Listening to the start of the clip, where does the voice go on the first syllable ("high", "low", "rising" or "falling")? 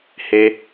low